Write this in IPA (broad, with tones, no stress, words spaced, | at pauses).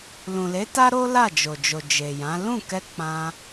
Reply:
lũ˨le˨˦ta˦ ɾo˦ la˦˨d͡ʒo˨d͡ʒo˨ d͡ʒe˨jã˨˦ lũ˦˨kɛ˧ k͡pã˧